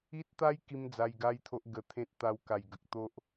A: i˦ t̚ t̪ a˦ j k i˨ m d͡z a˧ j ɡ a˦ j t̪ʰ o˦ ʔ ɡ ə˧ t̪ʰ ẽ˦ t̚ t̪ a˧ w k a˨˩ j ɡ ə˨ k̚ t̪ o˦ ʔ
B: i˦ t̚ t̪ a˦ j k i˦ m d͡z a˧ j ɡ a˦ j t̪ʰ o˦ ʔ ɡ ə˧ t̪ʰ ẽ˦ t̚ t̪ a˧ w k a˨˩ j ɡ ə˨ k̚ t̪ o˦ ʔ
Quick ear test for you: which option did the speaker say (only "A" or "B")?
B